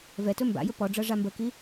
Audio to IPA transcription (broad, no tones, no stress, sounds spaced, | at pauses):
v ɛ t ɵ m b a̰ j ɵ p ɔ ɖ͡ʐ ɤ ʐ a m b ə k i